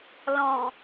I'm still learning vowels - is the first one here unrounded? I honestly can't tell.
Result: no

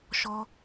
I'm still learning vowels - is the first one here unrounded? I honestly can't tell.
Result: no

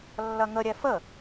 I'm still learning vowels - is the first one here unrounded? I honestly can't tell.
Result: yes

